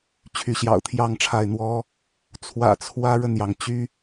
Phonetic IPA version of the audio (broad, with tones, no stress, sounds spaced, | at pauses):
t͡ɕʰ y˨˦ ɕ j ɑ̰˨˩ ʊ̯ t̪ʰ j ɑ˥˨ ŋ ʈ͡ʂʰ a˥˨ ɪ̯ n̪ w ɔ˦ | t͡sʰ w ä̰˨˩ t͡sʰ w ä˦ ɻ ə˥˨ n j ɑ˩ ŋ t͡ɕ y˦